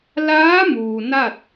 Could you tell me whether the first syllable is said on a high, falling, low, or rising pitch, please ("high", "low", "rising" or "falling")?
rising